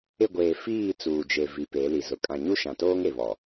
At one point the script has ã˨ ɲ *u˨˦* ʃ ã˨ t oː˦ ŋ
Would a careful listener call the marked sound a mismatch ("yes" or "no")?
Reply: yes